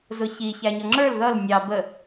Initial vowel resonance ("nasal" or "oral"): oral